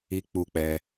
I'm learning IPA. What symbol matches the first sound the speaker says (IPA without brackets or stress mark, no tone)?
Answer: i